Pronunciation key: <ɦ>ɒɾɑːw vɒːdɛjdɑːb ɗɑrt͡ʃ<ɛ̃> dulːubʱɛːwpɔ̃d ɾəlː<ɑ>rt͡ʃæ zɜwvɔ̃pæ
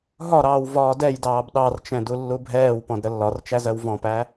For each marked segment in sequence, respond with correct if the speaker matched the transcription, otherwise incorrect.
correct, correct, incorrect

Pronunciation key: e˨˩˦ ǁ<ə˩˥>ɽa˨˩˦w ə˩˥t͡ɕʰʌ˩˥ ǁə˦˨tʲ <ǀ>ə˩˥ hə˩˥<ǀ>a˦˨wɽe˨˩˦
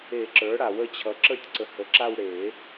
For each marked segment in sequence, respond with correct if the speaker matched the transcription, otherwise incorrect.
incorrect, correct, incorrect

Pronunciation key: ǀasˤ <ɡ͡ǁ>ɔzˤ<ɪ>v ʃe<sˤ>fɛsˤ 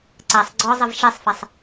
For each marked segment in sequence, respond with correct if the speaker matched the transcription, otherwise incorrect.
incorrect, correct, correct

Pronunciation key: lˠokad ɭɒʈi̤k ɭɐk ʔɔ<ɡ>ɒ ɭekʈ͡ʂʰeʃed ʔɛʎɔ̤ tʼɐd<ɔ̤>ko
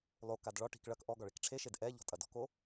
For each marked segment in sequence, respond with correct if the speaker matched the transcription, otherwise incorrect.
correct, correct

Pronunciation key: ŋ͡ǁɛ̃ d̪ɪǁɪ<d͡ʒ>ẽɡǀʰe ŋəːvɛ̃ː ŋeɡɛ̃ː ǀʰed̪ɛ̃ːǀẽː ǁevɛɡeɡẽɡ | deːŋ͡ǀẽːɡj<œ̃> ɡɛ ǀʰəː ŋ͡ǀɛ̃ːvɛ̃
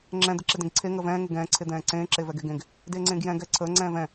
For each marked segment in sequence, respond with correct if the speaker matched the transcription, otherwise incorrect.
incorrect, incorrect

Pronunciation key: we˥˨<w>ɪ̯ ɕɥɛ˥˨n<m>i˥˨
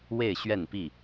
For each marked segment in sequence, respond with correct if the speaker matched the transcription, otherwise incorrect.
incorrect, incorrect

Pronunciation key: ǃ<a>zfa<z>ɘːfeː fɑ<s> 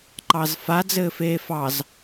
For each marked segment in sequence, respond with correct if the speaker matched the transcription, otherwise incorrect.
incorrect, incorrect, incorrect

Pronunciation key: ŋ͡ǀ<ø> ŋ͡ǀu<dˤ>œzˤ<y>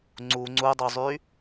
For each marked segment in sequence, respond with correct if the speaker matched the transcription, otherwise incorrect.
incorrect, correct, correct

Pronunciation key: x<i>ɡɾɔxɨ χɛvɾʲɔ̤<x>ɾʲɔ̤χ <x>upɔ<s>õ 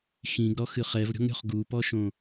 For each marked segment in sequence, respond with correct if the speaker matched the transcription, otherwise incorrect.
incorrect, incorrect, incorrect, incorrect

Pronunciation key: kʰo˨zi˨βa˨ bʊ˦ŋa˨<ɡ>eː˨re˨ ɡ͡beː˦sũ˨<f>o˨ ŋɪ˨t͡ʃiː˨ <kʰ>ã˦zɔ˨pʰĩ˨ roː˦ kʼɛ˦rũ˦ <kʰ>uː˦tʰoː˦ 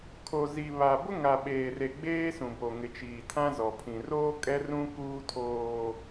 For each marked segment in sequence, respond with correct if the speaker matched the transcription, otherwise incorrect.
incorrect, incorrect, incorrect, incorrect

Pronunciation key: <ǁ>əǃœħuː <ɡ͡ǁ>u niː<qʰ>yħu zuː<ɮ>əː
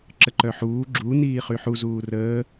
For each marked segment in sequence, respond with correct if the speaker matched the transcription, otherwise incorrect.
correct, correct, incorrect, incorrect

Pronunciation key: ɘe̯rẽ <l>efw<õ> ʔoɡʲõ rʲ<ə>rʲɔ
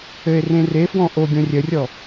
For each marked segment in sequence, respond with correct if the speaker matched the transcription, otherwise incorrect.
incorrect, incorrect, correct

